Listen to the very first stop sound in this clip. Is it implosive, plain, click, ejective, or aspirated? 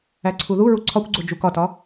click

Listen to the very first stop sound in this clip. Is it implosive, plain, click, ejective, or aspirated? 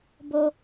plain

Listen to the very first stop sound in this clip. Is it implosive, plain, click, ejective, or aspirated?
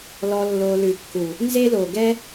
plain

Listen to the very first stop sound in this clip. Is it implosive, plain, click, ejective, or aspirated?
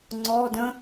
click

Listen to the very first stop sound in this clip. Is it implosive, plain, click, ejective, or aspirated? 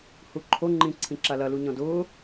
click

